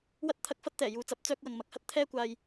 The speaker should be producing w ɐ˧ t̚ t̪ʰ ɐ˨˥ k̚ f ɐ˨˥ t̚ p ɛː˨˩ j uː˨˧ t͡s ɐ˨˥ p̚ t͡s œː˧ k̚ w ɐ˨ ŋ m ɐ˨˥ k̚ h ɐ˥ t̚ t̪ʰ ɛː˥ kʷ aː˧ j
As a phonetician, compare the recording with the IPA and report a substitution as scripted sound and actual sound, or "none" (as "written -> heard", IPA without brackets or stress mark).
p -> t̪